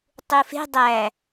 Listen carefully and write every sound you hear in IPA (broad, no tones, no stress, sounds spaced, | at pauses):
tˤ u f e̤ dˤ æ